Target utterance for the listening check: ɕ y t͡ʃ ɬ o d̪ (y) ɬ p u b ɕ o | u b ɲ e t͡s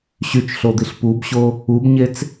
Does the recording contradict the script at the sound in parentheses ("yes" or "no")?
yes